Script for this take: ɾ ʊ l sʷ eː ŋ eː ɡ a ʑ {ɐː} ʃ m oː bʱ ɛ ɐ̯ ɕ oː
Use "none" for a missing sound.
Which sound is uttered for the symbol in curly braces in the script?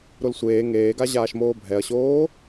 aː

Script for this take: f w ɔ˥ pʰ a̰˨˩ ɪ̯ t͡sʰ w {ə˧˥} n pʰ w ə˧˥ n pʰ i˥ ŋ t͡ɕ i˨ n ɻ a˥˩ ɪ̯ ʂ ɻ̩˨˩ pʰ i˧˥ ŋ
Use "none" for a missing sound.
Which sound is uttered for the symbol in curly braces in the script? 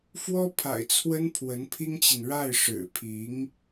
ə˥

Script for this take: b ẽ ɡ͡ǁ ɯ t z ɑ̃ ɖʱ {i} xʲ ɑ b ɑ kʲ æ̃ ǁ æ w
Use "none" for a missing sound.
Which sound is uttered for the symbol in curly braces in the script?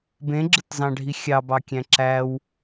i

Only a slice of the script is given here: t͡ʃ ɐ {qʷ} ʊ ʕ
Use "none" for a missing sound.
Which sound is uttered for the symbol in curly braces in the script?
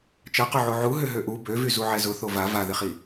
q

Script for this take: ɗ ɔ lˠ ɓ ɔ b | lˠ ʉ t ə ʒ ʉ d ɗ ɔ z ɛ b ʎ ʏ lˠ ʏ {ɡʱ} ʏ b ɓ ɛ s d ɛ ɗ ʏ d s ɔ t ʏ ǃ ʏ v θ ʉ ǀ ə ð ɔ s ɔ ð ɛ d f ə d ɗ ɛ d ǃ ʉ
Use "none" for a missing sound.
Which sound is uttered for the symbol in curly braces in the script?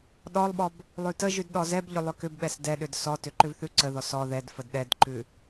k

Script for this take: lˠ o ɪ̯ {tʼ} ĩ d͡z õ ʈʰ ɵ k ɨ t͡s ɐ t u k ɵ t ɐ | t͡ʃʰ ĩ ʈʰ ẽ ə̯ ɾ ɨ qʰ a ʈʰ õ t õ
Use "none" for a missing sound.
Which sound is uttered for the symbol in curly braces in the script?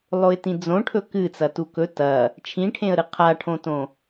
t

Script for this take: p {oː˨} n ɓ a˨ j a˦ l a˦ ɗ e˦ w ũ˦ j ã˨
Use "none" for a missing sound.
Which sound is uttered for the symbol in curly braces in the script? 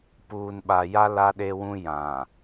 uː˨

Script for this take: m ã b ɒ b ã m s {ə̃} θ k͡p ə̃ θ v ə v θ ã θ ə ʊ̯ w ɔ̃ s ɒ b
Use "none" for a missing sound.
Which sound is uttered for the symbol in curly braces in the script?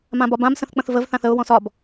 ə̃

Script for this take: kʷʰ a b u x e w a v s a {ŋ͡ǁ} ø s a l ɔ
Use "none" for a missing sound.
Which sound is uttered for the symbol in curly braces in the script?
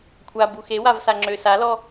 ŋ͡ǁ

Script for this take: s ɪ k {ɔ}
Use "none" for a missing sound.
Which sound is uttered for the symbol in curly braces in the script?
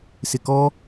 ɔ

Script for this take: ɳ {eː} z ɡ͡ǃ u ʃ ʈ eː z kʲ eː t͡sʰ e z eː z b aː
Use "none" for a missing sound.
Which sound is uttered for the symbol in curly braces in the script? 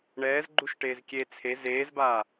ɛː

